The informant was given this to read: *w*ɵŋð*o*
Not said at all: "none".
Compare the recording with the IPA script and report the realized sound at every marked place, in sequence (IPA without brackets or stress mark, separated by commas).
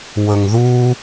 w, u